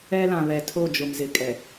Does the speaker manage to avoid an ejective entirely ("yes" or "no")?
no